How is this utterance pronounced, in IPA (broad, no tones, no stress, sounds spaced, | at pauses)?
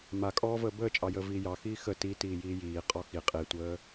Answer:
m a kʼ ɔː v əː b əː t͡ʃʼ ɑ j əː v iː j ɑ x iː x ə t i t iː j iː j iː qʼ ɔ x i qʼ i tʷ əː